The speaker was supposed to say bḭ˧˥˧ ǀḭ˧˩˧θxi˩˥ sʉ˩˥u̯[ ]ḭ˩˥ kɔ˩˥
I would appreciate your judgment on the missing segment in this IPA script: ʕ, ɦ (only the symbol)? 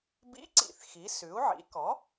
ʕ